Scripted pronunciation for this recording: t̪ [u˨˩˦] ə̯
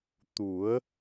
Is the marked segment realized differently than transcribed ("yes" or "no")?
no